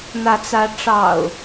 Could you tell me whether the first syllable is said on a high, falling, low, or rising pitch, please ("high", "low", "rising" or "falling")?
rising